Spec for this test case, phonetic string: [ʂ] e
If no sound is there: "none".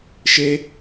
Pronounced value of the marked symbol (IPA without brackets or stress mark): ʃ